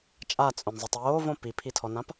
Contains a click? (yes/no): no